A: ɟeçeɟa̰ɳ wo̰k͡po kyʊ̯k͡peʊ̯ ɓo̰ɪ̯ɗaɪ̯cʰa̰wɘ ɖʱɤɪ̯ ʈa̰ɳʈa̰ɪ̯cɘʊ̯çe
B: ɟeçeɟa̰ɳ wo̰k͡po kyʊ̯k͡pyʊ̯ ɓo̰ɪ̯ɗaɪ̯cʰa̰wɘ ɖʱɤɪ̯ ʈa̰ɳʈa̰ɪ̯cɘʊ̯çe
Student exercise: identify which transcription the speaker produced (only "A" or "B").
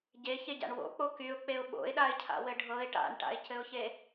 A